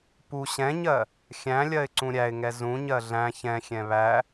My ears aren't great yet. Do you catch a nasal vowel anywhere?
yes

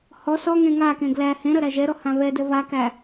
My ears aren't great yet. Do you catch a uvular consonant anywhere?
no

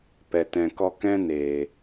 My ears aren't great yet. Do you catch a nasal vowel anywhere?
yes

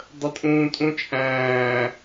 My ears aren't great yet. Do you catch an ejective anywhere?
yes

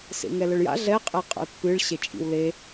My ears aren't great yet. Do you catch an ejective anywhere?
yes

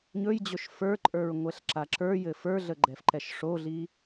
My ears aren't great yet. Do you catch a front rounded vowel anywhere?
no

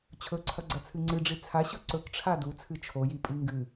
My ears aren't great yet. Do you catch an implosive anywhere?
no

